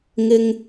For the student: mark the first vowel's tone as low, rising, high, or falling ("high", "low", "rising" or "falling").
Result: high